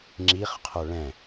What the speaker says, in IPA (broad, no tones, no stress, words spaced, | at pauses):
ŋ͡ǁiχqʰo ɭɛ̃